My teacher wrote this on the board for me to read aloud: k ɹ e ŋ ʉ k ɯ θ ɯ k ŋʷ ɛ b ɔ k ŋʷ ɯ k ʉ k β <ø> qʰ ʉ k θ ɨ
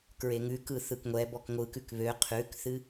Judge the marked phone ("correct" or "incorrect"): correct